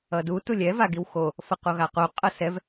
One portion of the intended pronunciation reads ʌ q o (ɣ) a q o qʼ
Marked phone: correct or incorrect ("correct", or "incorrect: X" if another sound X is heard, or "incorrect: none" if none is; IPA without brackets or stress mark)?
correct